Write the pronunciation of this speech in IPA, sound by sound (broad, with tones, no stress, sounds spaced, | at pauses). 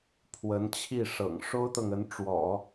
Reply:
pʰ w ə˧˥ n t͡ɕʰ i˥˩ ʂ ɤ̰˨˩ ŋ ʂ o˥ ʊ̯ t̪ ɤ˨ ŋ ə˧˥ n ʈ͡ʂ w ɔ̰˨˩˦